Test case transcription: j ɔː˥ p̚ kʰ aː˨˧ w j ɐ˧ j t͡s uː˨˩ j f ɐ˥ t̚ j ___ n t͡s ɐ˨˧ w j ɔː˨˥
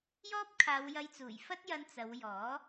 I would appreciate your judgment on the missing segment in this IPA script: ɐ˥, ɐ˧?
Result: ɐ˧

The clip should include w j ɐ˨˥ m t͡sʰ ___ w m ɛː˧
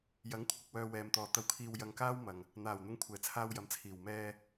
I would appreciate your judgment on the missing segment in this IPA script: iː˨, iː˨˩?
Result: iː˨˩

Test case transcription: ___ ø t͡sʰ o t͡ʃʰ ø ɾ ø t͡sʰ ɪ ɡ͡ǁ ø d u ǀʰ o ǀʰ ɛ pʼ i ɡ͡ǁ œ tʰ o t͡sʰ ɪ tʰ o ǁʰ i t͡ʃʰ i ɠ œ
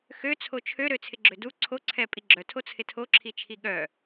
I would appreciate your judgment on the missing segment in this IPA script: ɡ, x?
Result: x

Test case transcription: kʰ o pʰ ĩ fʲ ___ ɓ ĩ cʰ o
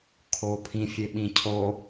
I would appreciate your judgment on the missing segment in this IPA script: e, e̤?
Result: e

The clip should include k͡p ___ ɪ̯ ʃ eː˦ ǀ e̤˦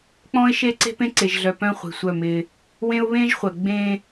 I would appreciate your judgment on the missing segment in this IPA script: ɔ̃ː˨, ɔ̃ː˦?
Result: ɔ̃ː˦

